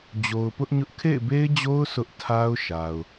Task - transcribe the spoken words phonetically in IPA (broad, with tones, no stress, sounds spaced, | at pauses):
d͡ʑ o˨ ʊ̯ p ʊ˦ ʔ ɲ ʊ˦ ʔ kʰ ḛ˦˨ ɪ̯ b e˦ ɪ̯ d͡ʑ o˦ ʊ̯ sʰ ʊ˦ ʔ tʰ a˦ ʊ̯ ʃ a˨ ʊ̯